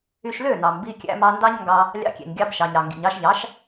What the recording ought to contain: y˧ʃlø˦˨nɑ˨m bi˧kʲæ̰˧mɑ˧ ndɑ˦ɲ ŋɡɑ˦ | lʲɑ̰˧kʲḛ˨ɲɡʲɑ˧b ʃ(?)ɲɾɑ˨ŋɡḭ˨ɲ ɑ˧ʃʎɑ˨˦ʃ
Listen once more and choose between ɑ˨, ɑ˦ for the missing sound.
ɑ˨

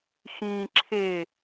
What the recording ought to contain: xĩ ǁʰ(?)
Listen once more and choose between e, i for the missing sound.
e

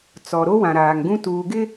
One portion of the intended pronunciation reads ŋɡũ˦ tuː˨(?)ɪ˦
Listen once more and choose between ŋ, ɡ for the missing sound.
ɡ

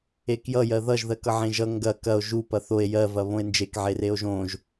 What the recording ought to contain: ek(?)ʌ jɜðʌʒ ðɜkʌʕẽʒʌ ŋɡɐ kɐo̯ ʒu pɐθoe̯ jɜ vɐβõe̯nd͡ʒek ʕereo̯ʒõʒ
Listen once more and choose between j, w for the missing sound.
j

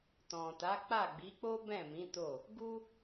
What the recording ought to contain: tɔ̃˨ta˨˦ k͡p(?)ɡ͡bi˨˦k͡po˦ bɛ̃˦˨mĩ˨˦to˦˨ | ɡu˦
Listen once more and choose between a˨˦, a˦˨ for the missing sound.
a˦˨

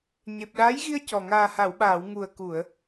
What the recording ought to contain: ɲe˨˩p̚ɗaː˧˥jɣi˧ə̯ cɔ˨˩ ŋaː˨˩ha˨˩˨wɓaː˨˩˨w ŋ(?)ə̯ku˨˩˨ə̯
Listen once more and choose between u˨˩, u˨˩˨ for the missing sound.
u˨˩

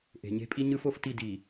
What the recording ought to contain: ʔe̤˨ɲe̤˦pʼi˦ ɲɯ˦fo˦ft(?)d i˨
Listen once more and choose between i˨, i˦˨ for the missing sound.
i˦˨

